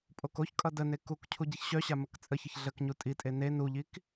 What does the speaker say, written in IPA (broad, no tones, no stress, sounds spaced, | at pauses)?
pʼ o k o ç kʼ ʌ d ə n e k u k cʰ u ɟ i ç ɕ œ ɕ a m ə k t͡sʼ ə ç ə ç ɮ ə k ɲ u tʼ i tʼ e n e n u ʎ i k